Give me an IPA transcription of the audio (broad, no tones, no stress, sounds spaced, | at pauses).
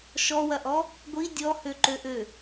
ʃ ɔ w ɐ ʔ ɔ | ɡʷ i dʲ ɔ h ø ǃ ø ʔ ø